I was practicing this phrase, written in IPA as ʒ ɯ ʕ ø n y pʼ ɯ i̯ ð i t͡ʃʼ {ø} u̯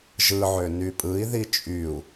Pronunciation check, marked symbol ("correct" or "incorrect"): incorrect